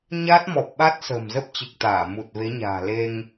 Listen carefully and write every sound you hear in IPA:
ɲ aː˦˥ t̚ m ɔ˨˩ p̚ ɓ a˦˥ t̚ s ə̤ː˨˩ m z ə˦˥ p̚ t͡ɕ ɨ˨˩ k̚ t̪ aː˧˩ m u˨˩ t̚ v e˨˦ ɲ a̤ː˨˩ l e˧ ŋ

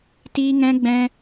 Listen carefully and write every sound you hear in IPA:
t iː˦ ŋ ɛ̃˦ ɡ͡b ɛ̃˦

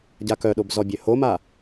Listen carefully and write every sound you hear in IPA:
ɟ a k œ ɗ o b z ɔ bʲ ø h o m a

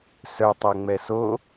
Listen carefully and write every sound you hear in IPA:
s œ tˤ ɛ ŋ͡m ɛ s o

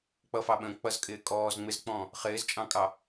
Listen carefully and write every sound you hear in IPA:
k͡p ʌ f ɑ ɓ ə̃ː k͡p ʌ z kʼ ɪː kʼ ɔː z ŋ͡m ɪ z k͡p ɔ̃ | χ ɪː z t͡ʃʼ ɑ̃ kʼ ɑ

